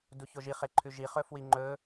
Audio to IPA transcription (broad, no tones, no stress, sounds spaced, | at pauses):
d u ç o ʒ i χ e ǃʰ ʉ ʒ i χ ɵ f w i ŋ͡ǃ ɵ